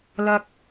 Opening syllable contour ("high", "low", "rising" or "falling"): low